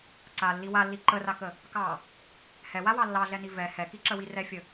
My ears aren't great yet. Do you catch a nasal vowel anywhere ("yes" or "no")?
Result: no